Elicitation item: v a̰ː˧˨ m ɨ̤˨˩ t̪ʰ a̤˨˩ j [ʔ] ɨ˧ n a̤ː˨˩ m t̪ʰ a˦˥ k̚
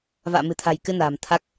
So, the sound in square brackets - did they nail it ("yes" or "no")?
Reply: no